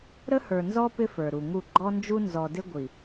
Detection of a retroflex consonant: absent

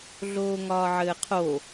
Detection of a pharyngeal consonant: present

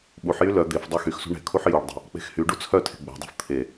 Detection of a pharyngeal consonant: present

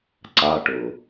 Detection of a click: present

